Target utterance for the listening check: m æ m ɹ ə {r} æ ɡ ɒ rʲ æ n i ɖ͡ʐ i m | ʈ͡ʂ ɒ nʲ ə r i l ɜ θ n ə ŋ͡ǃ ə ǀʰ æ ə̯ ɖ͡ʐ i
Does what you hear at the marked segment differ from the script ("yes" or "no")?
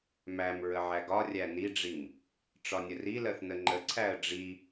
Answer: yes